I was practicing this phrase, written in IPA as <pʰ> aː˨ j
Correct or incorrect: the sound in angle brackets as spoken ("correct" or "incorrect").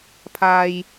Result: correct